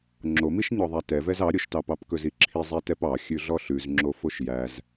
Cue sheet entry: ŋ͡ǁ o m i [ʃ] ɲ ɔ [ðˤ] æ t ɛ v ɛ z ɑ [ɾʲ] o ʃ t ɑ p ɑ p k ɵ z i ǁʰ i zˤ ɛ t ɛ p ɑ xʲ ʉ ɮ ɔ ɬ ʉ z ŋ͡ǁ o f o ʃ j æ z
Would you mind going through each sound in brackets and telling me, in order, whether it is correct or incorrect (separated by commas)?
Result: correct, correct, correct